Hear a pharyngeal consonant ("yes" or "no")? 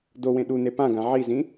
yes